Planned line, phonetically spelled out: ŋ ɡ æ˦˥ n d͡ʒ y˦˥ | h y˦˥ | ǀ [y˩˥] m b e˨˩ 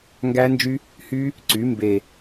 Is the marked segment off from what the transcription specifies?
no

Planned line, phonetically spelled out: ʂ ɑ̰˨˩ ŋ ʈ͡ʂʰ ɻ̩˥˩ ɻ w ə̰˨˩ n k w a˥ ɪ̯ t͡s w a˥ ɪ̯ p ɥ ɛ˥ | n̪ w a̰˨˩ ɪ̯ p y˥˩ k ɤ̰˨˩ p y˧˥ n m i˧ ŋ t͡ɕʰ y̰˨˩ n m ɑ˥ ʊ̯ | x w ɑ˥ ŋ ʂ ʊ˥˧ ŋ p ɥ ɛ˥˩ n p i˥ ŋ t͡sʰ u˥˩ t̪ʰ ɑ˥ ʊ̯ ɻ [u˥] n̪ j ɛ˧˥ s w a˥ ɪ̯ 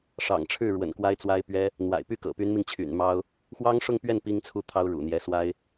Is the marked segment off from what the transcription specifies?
yes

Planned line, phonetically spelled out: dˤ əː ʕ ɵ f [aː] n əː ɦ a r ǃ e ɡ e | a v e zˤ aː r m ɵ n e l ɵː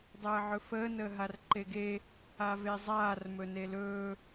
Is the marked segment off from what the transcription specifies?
yes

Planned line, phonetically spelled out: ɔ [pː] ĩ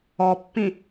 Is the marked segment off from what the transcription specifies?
no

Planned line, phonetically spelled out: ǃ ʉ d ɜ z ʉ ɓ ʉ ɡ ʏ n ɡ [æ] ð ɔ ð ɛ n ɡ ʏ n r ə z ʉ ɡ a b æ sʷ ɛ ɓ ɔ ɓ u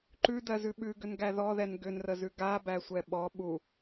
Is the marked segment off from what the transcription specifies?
no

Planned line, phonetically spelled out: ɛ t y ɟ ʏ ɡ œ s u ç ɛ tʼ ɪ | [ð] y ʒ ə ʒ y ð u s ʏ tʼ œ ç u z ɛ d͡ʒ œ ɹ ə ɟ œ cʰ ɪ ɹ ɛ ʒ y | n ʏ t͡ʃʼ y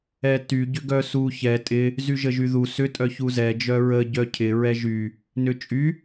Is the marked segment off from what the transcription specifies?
yes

